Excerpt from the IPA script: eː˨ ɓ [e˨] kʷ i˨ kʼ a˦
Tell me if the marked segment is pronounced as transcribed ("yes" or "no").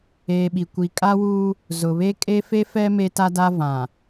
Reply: no